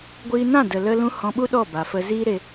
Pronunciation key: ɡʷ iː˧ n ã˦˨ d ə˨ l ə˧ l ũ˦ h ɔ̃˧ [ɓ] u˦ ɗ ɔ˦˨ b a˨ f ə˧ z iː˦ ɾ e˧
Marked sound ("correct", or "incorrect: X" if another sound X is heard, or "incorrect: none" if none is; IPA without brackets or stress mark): correct